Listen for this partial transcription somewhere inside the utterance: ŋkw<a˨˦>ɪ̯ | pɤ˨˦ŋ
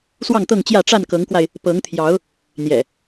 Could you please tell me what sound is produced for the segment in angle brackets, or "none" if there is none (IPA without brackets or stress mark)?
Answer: a˧